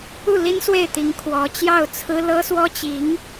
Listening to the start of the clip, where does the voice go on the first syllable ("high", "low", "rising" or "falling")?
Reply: falling